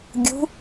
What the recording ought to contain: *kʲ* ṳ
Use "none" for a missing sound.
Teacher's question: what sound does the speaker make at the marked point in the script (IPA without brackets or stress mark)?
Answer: ɡʲ